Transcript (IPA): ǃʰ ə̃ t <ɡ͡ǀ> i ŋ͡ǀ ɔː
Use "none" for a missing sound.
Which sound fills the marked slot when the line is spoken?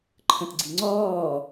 ɡ͡ǀ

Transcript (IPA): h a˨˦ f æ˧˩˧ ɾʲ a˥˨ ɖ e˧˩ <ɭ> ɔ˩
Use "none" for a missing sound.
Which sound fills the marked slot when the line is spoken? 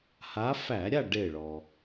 ɭ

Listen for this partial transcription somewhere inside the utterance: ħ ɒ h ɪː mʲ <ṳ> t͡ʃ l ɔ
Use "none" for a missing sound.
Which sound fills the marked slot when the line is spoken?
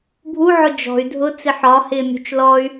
ṳ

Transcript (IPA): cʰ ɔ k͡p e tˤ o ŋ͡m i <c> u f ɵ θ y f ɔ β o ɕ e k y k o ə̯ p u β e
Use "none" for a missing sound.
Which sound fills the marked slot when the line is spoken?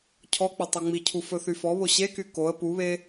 cʰ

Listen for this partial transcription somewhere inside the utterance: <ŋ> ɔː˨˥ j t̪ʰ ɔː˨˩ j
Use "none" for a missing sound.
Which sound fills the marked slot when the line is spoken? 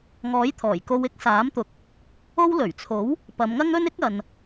ŋ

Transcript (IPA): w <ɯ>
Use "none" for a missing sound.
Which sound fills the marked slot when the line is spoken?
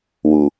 u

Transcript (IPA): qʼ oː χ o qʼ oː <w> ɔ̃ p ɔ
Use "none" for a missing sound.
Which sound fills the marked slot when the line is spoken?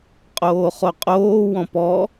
w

